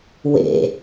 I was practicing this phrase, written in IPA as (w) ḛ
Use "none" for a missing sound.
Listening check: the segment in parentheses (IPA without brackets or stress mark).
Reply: w